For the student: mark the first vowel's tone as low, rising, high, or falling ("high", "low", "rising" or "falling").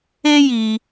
high